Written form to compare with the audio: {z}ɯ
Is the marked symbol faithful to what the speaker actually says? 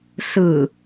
no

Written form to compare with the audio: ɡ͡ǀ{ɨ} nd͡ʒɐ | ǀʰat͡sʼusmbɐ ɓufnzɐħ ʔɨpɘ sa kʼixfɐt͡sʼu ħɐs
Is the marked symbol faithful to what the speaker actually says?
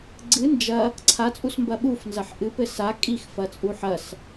yes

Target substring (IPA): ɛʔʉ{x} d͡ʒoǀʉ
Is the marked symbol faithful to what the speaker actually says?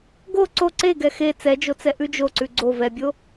no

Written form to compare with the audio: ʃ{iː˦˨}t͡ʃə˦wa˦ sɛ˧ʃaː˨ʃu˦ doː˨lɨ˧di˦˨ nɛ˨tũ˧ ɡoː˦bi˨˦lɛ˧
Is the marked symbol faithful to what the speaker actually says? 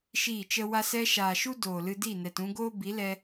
yes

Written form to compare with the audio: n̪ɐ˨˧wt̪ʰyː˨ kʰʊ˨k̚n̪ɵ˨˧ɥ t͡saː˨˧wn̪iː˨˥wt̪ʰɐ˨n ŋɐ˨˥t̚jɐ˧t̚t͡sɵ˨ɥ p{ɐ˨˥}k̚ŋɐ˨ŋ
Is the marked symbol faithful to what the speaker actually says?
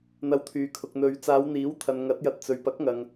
yes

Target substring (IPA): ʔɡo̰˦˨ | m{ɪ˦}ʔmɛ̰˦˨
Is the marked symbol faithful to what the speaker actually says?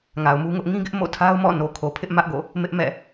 yes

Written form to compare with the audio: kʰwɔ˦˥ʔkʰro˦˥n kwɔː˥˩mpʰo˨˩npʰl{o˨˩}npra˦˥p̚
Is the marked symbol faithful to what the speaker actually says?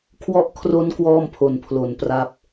yes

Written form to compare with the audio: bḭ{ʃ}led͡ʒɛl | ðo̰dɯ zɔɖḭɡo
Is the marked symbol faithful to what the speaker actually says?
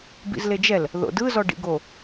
no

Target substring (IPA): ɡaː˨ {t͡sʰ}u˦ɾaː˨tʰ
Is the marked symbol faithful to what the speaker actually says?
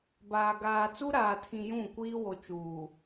no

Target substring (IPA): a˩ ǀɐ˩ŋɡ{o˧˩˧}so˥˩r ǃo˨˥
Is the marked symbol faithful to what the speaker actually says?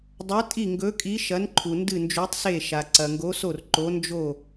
no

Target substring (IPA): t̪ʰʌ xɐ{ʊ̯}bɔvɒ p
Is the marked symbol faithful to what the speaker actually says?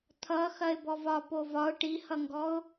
no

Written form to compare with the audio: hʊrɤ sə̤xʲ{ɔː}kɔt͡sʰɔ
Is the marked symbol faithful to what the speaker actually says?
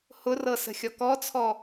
no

